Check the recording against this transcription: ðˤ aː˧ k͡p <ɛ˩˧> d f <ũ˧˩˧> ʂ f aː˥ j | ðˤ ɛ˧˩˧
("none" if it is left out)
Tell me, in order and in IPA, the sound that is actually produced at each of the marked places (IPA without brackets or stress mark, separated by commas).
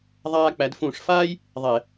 æ˩˧, ũ˧˩˧